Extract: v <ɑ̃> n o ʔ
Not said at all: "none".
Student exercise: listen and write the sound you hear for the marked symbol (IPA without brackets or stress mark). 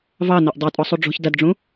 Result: ɑ